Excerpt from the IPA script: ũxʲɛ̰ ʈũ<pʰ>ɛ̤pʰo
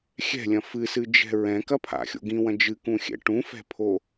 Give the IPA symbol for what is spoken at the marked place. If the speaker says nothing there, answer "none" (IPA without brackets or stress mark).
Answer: f